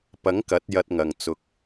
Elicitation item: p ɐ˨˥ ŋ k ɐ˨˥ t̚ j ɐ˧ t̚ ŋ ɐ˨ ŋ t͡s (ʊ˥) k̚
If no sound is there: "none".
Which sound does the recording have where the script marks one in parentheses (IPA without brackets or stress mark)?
ʊ˨